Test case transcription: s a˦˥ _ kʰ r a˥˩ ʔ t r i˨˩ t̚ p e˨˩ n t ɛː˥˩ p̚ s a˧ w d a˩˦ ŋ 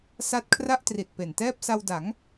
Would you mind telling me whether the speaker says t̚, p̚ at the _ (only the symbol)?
t̚